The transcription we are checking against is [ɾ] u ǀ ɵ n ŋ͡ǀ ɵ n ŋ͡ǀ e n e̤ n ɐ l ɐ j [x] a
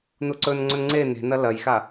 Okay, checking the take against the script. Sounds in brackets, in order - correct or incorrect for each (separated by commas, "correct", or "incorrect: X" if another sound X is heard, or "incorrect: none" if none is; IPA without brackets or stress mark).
incorrect: n, correct